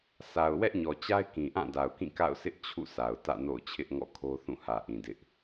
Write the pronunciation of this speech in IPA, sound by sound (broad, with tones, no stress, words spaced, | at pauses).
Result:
sʰa˨ʊ̯ wɛ˦ʔɲɔ˨t͡ɕa˦ɪ̯ kĩ˨ʔã˦˨da˨ʊ̯kĩ˦˨ ka̰˦˨ʊ̯sɪ˦ʔ t͡ɕʰṵ˦˨sʰa˨ʊ̯tä̰˦˨ no̰˦˨ʊ̯t͡ɕʰɪ˦ʔŋɔ̰˦˨ kʰo˦θũ˦˨hä˨ʔĩ˨ dɪ˦ʔ